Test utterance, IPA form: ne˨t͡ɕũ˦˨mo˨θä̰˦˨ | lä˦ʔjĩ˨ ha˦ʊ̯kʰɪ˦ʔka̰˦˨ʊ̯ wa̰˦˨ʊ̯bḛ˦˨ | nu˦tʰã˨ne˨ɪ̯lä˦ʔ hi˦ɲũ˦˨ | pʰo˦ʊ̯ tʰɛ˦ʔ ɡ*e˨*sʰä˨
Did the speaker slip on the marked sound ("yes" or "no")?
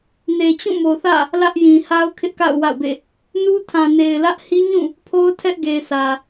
no